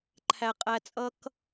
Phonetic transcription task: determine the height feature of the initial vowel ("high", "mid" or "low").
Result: low